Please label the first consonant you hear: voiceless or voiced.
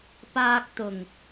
voiceless